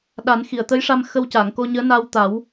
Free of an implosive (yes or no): no